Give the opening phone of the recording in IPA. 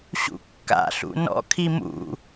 ɕ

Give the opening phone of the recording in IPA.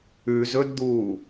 ʉ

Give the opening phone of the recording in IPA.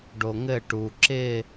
ɖ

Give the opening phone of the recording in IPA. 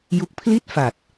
j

